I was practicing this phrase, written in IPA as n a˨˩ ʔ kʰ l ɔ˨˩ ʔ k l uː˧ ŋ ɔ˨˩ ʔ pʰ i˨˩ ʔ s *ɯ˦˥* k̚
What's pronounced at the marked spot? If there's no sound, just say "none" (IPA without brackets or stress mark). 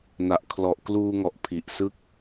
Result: ɯ˥˩